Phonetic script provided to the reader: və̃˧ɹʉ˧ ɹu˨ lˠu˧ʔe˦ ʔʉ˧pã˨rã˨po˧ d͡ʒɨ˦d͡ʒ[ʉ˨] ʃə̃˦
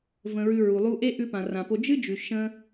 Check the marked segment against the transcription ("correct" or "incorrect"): correct